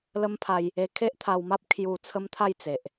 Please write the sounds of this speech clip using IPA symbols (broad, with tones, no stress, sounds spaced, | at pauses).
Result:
l ə˦ m pʰ a˧ j | e˧ kʰ e˦ ʔ t̪ʰ a˧ w m a˦ p̚ kʰ j u˧ t͡sʰ ə˦ m t̪ʰ a˥˧ j t͡s e˨ ʔ